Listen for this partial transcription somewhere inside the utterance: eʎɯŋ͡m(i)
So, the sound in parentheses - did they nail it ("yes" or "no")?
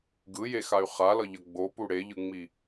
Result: yes